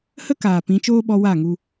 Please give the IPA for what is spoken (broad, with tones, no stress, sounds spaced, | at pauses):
h ə˦ k aː˨ p ĩ˨˦ t͡ʃ oː˦ ɓ ɔ˧ w a˦˨ ŋ u˧